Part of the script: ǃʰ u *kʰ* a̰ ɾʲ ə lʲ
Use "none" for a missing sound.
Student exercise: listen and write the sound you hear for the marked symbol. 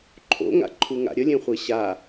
ŋ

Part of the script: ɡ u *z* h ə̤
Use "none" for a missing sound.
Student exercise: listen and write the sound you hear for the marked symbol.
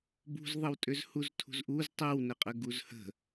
z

